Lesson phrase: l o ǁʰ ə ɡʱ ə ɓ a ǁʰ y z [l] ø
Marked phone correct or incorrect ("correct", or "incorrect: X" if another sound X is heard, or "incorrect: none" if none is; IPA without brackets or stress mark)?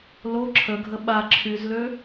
correct